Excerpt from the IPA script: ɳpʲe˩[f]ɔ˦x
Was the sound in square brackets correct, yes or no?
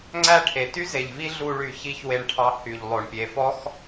yes